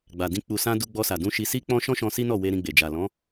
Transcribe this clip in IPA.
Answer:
ɡ͡b a˨ d ĩ˧ k͡p u˨ s ã˧ d u˧ ɡ͡b ɔ˧ s a˨ d ũ˧ ʃ i˧ s i˦ k͡p ɔ̃˦ ʃ ɔ̃˦ ʃ ɔ̃˧ s i˦ n ɔ˦˨ w e˧ ɾ ĩ˧ ɡ͡b e˨ d͡ʒ a˨ l ɔ̃˨˦

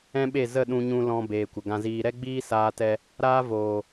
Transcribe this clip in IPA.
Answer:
ɛ̃˦ ɓ e˦˨ z ə˦˨ ɗ ũ˧ ɲ ũ˧ l ɔ̃˧ b eː˨ kʷ ə˨ ɡ ã˧ z iː˧ ɾ ɛ˦ ɡ͡b iː˦ s aː˦ t ɛ˦ | ɾ aː˦ v oː˨

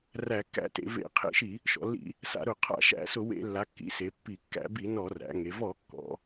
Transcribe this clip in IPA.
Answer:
r æ˧˩˧ kː æ̰˧˩˧ t ḛ˩˧ v ḛ˧˩˧ qʰ ḛ˧˩˧ ʃ i˧˩˧ | ʃ ɔ̰˩˧ lː ḭ˧˩˧ | s a̰˧˩˧ ɾ ʊ˧˩˧ qʰ a̰˧˩˧ ʃ æ̰˧˩˧ s ʊ˧˩˧ w ḛ˧˩˧ lː a˩˧ kː ḭ˩˧ s e˩˧ pː i˧˩˧ kː æ̰˧˩˧ b i˧˩˧ n ɔ˧˩˧ r æ̰˩˧ ŋ e˩˧ v ɔ˧˩˧ kː ɔ̰˩˧

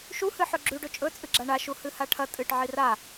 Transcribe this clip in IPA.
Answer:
ʃ u h ɨ ħ ɵ ɡ͡ǁ ʉ ɖ ɵ t͡ʃʼ ɵ t͡sʼ ɨ ɡ͡ǁ a ɳ a ʃ u h ɨ h a ʈʰ ɐ tʼ ɨ ʈ ʕ i r a

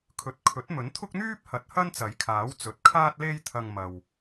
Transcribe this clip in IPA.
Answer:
kʰ ɵ˨˥ t̚ kʰ ɵ˨˥ t̚ m ɵ˨˥ n t̪ʰ ʊ˥ k̚ n̪ yː˥ p̚ h ɐ˨˥ t̚ h ɐ˥ n t͡s ɐ˨˥ j kʰ aː˨˥ w t͡s ɵ˨˥ t̚ kʰ aː˥ t̚ l e˥ j t̪ʰ ɐ˧ ŋ m ɐ˨ w

